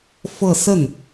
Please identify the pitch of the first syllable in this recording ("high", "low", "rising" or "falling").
falling